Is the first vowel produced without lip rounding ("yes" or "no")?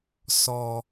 no